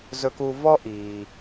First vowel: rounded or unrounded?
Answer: rounded